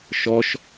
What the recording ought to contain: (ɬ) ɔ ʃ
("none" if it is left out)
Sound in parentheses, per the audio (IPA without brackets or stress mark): ʃ